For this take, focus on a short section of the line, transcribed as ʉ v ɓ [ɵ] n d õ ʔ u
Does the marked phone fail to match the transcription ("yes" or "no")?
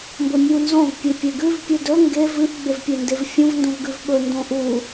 no